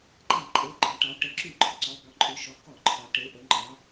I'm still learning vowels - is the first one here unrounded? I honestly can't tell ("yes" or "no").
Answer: yes